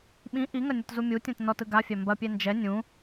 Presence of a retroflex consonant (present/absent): absent